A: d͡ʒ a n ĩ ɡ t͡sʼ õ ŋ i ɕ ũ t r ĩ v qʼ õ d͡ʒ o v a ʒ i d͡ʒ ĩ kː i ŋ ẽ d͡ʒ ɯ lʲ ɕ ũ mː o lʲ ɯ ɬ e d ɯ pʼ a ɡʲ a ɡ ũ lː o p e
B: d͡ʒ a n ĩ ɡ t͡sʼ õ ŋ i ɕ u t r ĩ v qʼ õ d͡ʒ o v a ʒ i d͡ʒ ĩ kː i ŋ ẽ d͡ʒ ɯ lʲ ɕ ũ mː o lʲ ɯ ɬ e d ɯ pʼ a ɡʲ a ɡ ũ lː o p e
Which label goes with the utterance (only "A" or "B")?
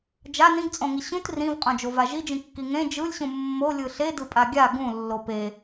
A